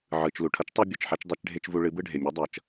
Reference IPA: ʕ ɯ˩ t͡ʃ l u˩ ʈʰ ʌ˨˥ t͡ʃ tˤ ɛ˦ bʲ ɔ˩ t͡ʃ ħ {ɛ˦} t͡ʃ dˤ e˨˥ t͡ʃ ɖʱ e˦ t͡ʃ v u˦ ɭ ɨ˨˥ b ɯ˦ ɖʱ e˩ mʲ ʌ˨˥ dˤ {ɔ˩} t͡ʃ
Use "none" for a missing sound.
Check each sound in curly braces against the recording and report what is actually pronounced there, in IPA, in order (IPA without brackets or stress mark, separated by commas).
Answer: ɛ˦, ʌ˩